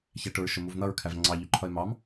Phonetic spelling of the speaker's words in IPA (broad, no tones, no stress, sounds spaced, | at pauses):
ç æ ʈ ʊ ɹ ʃ ʊ m u v n̪ ʌ ɹ kʰ æ v ŋ͡ǀ ɑ ʎ u ǃʰ ʌ ɪ̯ m ɑ m